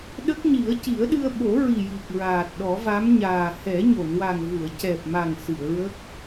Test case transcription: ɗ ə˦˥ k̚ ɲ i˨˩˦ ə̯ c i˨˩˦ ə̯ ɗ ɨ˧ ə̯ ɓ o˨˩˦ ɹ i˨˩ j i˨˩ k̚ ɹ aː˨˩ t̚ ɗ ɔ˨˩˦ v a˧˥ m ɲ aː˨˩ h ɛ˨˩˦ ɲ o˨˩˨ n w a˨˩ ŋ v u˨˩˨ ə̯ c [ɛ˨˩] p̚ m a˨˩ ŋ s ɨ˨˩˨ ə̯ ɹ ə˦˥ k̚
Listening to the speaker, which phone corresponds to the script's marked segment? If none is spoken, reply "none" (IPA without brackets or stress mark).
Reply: ɛ˨˩